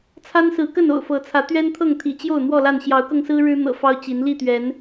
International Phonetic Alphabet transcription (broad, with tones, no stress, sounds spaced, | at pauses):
t͡sʰ a˦ n s ɹ̩˨˦ k ə˥˨ n o̰˨˩ ʊ̯ f ɤ˨˦ t͡sʰ ä˨˦ t̪ ɥ ɛ˦ n t̪ʰ ɤ˥˨ ŋ t̪ʰ ḭ˨˩ t͡ɕ j o˥˨ ʊ̯ n̪ w ɔ˥˨ l a˥˨ n ɕ j ɑ˨˦ ʊ̯ k ɤ˧ ŋ s ɹ̩˦ ɻ ɻ̩˦ n̪ ɤ̰˨˩ f ɑ˦ ʊ̯ t͡ɕ i˨˦ n l i˥˨ t̪ ɥ ɛ˨˦ n